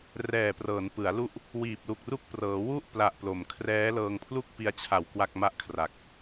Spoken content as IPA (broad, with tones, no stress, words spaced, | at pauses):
rɛː˨˩prɤː˩˦n pɯ˩˦a̯lu˦˥ʔ | wiː˨˩p̚lu˨˩k̚ ru˦˥k̚prɤː˩˦ wu˦˥ʔ pla˨˩ʔplo˩˦mkʰrɛː˦˥ lɤː˧ŋpʰlu˥˩k̚pi˧a̯t͡ɕʰa˨˩w kwa˥˩k̚ma˥˩ʔkʰra˨˩k̚